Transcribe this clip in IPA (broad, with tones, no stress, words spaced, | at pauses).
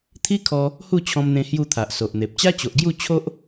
t̪ʰi˦kʰɔ˧ | hu˥˧t͡ɕʰɔ̃˧mn̪ẽ˧ hju˥˧t̪ʰa˨ʔso˨ʔn̪e˨p̚ t͡ɕa˦t͡ɕo˨ʔɡju˥˧ t͡ɕʰo˦ʔ